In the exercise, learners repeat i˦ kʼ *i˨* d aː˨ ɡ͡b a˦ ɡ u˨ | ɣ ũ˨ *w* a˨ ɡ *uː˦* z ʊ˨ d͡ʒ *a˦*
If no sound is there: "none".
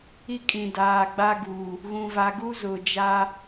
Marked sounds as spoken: ĩ˨, v, u˦, a˦

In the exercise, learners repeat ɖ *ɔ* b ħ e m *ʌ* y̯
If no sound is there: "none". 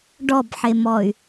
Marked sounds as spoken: ɔ, ɔ

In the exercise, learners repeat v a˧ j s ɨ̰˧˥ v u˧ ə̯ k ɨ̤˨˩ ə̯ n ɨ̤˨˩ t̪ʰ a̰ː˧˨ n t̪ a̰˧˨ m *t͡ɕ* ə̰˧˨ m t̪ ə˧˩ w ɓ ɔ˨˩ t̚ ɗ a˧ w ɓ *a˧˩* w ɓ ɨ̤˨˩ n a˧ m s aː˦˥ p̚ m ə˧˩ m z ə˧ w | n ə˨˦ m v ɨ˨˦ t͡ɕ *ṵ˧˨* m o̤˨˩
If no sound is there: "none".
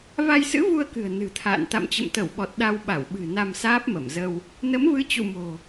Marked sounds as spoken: t͡ɕ, a˧˩, ṵ˧˨

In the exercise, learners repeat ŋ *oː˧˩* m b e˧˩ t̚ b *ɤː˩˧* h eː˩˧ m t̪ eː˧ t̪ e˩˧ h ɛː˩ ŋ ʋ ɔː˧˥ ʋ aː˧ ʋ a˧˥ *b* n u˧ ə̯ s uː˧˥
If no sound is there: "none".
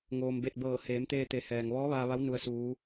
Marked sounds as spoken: oː˩, ɤː˧˩, w

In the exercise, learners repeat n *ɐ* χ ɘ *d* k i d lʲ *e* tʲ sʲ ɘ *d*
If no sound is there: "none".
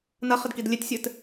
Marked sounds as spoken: ɐ, d, e, t

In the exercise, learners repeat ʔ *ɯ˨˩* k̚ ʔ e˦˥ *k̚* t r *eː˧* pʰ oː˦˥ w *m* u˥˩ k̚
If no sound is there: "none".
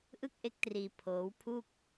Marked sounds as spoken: ɯ˥˩, k̚, iː˧, pʰ

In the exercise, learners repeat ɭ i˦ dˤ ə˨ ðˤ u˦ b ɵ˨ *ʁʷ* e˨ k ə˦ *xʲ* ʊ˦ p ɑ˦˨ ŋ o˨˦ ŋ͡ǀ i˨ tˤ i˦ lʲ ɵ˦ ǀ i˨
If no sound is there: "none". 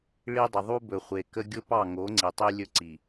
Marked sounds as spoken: χʷ, ɡʲ

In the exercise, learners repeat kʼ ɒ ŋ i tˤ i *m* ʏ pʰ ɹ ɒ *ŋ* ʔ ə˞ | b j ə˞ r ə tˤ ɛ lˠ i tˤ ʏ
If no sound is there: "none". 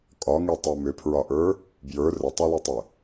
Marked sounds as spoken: m, none

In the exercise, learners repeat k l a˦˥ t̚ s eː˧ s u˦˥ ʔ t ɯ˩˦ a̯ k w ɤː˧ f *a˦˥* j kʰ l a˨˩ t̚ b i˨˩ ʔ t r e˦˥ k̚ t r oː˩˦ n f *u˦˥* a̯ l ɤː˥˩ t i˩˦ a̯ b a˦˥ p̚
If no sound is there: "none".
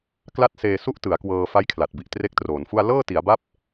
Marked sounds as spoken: a˦˥, u˥˩

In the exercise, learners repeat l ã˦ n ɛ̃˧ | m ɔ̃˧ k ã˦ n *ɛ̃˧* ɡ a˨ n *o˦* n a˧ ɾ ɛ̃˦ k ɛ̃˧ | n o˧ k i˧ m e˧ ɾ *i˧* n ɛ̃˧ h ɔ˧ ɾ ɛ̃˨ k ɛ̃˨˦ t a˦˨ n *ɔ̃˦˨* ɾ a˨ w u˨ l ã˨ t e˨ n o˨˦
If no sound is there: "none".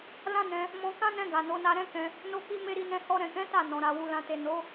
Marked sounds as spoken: ɛ̃˧, o˨˦, i˧, ɔ̃˨

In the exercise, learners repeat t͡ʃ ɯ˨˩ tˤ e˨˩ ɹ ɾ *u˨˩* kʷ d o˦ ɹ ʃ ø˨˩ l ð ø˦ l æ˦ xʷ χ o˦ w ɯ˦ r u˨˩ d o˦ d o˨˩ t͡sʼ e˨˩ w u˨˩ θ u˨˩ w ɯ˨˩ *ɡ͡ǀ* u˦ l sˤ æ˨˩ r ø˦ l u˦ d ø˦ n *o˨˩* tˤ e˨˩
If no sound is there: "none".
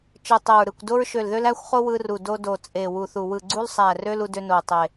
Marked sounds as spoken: ɯ˨˩, ɡ͡ǀ, o˨˩

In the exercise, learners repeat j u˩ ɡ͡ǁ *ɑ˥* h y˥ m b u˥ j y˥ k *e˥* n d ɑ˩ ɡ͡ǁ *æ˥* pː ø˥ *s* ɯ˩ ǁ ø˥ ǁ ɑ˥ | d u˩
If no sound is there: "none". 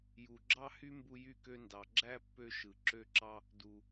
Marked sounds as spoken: ɑ˥, ø˥, æ˥, ʃ

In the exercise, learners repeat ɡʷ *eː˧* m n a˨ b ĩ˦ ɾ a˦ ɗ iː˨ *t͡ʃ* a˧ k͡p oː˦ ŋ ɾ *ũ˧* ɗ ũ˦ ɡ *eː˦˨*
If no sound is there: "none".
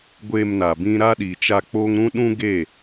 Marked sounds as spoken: eː˧, t͡ʃ, ũ˦, eː˦˨

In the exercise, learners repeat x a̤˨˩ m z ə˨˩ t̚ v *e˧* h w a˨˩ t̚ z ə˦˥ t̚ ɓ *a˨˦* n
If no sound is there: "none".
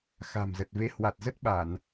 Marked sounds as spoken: e˧, a˧˩˨

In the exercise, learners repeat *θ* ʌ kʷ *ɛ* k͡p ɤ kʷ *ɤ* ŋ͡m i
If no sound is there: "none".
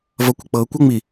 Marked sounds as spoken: v, ə, ɤ

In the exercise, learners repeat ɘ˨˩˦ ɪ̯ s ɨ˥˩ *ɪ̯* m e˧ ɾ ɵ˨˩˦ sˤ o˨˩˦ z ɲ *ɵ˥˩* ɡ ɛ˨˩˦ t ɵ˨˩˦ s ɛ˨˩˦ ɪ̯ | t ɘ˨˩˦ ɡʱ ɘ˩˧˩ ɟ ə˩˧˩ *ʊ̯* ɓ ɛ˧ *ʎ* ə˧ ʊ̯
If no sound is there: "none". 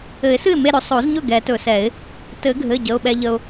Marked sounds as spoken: ɪ̯, ɵ˥˩, ʊ̯, ʎ

